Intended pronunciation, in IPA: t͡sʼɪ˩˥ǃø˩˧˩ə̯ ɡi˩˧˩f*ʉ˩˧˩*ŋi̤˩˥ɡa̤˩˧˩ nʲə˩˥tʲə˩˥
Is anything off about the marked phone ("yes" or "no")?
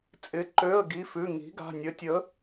no